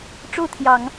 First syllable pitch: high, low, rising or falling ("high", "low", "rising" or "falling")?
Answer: falling